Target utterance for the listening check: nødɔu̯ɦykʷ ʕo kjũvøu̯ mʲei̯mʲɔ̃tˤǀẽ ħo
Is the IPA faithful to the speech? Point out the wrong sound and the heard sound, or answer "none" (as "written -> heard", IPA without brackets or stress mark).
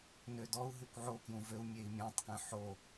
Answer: ǀ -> k